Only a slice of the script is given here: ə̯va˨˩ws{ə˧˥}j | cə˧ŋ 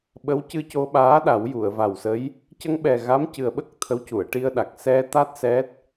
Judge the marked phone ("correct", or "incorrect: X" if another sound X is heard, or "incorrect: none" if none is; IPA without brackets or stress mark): correct